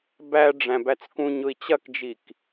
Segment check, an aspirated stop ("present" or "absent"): absent